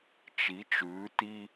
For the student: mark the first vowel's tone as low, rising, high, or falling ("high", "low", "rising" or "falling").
rising